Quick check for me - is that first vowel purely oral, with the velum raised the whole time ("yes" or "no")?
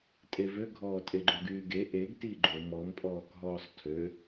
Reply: yes